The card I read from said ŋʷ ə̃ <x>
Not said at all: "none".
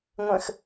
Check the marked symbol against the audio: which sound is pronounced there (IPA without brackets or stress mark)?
x